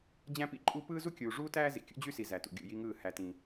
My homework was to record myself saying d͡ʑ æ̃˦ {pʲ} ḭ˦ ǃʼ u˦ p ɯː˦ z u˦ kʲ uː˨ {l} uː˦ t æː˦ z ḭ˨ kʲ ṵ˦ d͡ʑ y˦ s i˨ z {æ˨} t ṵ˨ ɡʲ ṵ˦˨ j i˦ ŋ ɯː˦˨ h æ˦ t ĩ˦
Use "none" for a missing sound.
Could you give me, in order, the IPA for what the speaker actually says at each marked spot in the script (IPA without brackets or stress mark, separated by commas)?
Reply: p, ʐ, æ˨